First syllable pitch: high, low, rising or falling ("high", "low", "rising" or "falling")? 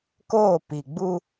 falling